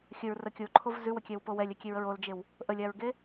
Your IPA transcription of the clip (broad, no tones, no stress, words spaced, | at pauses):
xʲəɹrə kʲoǃʰov zʉwəkʲɛwpo wɛlʲɛkʲeɹəɹ old͡ʒew | ʔəlʲaɹɡe